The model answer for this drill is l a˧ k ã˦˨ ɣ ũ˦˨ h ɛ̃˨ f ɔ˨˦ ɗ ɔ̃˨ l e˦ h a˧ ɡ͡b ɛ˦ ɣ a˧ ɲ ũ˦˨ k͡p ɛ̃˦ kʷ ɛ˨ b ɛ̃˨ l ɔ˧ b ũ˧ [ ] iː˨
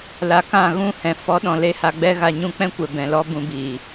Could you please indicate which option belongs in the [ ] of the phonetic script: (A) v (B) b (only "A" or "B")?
B